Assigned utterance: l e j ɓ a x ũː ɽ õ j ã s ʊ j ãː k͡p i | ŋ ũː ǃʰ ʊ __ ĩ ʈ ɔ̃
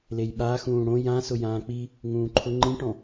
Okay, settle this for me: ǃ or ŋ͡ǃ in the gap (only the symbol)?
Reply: ŋ͡ǃ